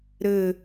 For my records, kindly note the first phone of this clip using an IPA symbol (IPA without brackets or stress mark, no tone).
ɾ